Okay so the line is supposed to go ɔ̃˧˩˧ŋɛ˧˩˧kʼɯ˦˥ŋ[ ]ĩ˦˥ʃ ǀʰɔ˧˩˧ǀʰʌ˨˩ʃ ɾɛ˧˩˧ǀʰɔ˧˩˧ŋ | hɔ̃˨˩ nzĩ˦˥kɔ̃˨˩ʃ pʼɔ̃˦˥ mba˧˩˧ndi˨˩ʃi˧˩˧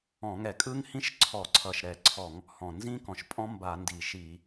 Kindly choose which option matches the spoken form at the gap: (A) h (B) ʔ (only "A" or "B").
A